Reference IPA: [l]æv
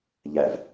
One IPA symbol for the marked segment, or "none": ʎ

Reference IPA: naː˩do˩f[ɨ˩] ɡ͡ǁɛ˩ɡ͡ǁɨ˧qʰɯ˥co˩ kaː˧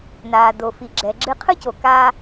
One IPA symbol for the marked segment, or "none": i˩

